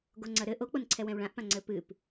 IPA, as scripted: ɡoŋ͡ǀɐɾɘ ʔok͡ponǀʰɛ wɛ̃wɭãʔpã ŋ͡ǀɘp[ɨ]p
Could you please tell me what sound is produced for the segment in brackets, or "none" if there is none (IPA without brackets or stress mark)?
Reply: ɨ